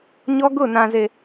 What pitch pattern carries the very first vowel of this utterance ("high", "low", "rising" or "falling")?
high